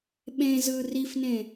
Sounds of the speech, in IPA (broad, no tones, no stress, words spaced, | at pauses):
ɓẽzɯ rifnẽ